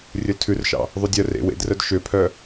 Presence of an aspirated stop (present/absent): present